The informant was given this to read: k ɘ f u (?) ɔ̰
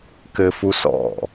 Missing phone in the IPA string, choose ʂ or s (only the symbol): s